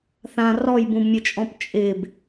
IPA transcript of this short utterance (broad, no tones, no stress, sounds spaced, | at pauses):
θ ã r ɔ j b ũ b mʲ ʊ t͡ʃʼ ɔ̃ p t͡ʃʼ ɪ b